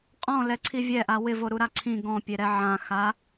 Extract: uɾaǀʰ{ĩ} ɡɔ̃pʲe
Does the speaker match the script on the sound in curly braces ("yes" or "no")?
yes